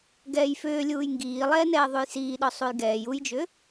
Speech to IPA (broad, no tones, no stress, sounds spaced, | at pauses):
ɡ ɛː j f ʏː lʲ uː j ŋ ɡ iː lˠ ɛː n ɛː ðˤ u j s iː ɗ ɔ sˤ u j ɡ ɛː j u j d͡ʒ ʏ